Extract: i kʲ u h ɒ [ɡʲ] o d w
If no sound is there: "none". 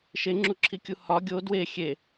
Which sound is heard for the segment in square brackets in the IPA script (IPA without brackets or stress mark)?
ɡʲ